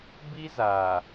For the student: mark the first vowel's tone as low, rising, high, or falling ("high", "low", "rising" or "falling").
high